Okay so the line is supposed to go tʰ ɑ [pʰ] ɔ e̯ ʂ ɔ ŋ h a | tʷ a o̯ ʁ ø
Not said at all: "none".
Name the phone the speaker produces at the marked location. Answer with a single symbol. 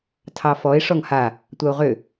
f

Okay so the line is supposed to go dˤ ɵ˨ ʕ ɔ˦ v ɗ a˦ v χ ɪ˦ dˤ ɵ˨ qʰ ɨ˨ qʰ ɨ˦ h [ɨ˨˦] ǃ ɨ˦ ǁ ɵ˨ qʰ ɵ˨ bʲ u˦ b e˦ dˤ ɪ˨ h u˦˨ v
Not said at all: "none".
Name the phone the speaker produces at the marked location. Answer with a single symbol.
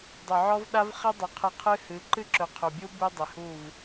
ɨ˨˦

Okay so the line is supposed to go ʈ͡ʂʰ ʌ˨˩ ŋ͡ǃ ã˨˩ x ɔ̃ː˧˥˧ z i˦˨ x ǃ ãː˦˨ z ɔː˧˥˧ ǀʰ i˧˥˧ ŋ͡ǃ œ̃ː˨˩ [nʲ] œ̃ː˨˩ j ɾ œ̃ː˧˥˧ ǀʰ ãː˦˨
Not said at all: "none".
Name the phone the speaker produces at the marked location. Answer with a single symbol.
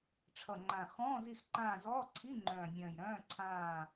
nʲ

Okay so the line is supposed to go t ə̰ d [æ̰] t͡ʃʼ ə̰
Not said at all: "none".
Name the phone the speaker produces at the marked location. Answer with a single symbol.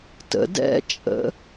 ɛ̰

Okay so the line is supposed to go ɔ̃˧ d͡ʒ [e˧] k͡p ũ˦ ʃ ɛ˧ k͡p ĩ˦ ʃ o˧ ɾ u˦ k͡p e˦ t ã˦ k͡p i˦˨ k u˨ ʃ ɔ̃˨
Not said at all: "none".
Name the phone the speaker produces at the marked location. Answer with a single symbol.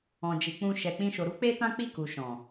i˧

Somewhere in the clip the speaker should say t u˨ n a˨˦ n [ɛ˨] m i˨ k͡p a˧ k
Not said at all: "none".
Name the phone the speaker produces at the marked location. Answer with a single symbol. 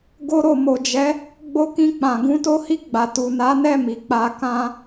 ɛ˦˨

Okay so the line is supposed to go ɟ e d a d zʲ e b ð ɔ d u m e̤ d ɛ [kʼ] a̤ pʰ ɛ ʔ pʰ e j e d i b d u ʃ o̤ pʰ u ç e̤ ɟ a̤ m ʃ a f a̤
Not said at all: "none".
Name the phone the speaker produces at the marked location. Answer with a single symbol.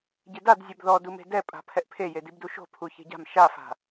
pʼ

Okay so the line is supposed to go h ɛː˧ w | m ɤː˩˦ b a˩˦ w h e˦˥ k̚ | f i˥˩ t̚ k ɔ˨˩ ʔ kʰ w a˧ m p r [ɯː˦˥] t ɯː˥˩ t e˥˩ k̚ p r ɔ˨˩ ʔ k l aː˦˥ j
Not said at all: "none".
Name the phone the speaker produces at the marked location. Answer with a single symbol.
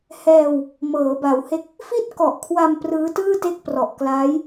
ɯː˦˥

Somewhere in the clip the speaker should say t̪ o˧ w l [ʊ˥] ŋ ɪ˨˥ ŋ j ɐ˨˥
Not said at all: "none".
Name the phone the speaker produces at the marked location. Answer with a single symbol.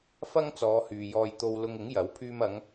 ʊ˧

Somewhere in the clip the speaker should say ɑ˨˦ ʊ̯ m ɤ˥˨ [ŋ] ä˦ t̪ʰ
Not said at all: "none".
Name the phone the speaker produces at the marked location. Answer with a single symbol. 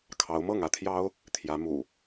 ŋ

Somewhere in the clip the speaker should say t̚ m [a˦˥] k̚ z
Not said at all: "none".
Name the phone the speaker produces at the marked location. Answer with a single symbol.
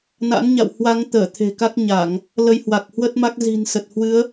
a˦˥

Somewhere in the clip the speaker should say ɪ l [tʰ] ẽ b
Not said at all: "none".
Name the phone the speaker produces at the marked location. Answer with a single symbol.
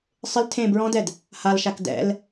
tʰ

